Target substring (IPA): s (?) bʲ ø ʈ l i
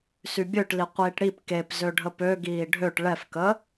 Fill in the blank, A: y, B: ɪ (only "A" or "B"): A